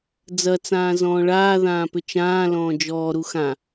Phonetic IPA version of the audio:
d͡z ɐ t͡s ãː z ɔ̃ː ɭ aː ð ãː p ʏ t͡ʃ ãː l ɔ̃ː d͡ʒ ɔː ɾ u x ã

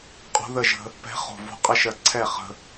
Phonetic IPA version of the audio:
qʼ o̤˧˥ ð ə˥˩ ʒ ə̤˧ | p ɛ̤˧˥ χ o̤˧˩ v o̤˧ qʼ ə˥˩ ʃ ɜ˧˩ ǀʰ ɛ˥˩ χ ə̤˧

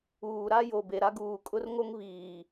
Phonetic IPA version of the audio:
uː˨ ɾ a˦ j o˨ b e˨ ɾ a˦ ɡ uː˨ kʼ ʊ˦ r ŋ o˦ ŋ β iː˨

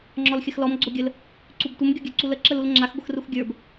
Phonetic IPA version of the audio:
ŋ͡ǁ ɔ l xʲ ə x l ɔ m ɡ͡ǀ o ɡʲ ə l | ǀ u b tʷ ə m ɡʲ o ɡʲ ə˞ ǀ u l ə ǁ ə l u l ŋ͡ǁ a x ɡʷ ə x r u x ɡʲ ə˞ b

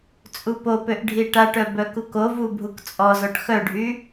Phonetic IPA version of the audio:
t͡sʼ u p o p ø ʔ ɖʱ i ʈ a ʈ œ b œ k u k o v u bʱ u k t͡sʼ ɔ z ɔ ʈ x œ ɖʱ y

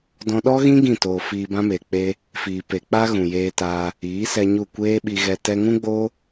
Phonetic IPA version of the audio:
d ɔ̃˧ ɗ ɔ˦ ɣ ĩ˦ ɡ ĩ˦˨ t oː˨ f iː˧ b ã˦ m e˨ k͡p e˧ | f iː˨ p e˨ k͡p a˦ ɣ ũ˨ j eː˧ t aː˧ | iː˨˦ s ɛ˧ ɲ u˦˨ kʷ eː˦ ɓ i˧ ɣ ɛ˧ t ɛ˧ ŋ ũ˦ ɡ͡b oː˦

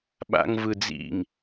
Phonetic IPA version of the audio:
ɓ a̰ ŋ v ɯ d͡z ḭ ŋ

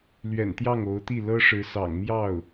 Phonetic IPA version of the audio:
l ɥ ɛ̰˨˩ n t̪ j ɑ˥˩ ŋ o˧˥ ʊ̯ t̪ i˥˩ l ɤ˥ ʂ ɻ̩˧˥ s ɑ̰˨˩ ŋ m j ɑ˥˩ ʊ̯

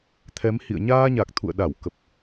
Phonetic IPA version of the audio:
t̪ʰ ɛ˨˦ m h ḭ˧˨ ə̯ ɲ aː˧ ɲ a˨˩ k̚ t̪ʰ ṵ˧˨ ə̯ ɗ a˧˩ w k ə˨˩ p̚

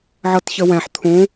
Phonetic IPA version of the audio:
ʕ ɤ t ç ə w ɛ̃ ħ t̪ʰ ũ

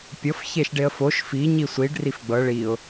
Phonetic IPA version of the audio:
pʲ ɤ f ç e ʃ ɖ e ə̯ f o ʃ f i ɲ i sʷ i ɖ r i f ɡ͡b ɤ ɭ i ʊ̯

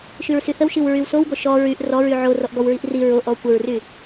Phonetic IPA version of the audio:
ʃ y ɹ s y θ ə w ʃ i w ɹ y w s o w ɡ o ʃ ɔ ɹ y ʔ r ɔ ɹ y ʕ o r ɔ ʔ ɡ ɔ w ɹ i ʔ r i ɹ o ʔ ɔ kʷ ə ɹ r y

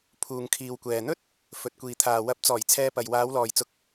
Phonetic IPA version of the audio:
pʰ uː˨ ŋ kʰ iː˨ w kʷ ɛː˨ n̪ ɵ˥ t̚ | f ɵ˨ t̚ kʷ iː˨ t̪ʰ aː˨ w ɐ˨˥ p̚ t͡s ɔː˨˩ j t͡sʰ ɛː˧ p ɐ˨ j w aː˨˧ w l ɔː˨ j t͡s ʊ˧ k̚

